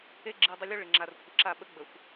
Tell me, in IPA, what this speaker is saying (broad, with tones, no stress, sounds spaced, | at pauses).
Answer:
e˦ ɡ͡ǁ i˨ dˤ ɪ˦ lʲ o˦ ɭ ɪ˨ ŋ͡ǁ a˨ r kʷʰ ɪ˨ ǁ a˦˨ ɓ ə˦ ɡ͡b ə˨ xʷ